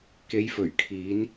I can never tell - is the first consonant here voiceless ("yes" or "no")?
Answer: yes